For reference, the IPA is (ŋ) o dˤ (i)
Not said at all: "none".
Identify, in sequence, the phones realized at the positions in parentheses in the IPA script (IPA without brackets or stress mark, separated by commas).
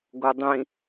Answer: ɡ, ĩ